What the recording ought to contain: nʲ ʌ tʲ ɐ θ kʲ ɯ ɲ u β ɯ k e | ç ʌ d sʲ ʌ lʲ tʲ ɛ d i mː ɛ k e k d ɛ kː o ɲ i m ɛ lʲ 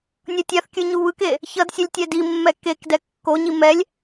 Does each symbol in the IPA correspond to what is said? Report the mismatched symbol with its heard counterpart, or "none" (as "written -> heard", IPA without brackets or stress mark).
ɐ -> a